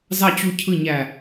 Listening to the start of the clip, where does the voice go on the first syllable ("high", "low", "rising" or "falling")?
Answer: falling